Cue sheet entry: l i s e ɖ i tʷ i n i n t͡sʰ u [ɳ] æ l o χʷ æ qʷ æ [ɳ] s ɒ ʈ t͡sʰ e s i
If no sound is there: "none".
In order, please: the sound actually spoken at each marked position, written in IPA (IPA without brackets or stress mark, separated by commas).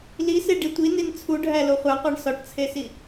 ɖʱ, ɳ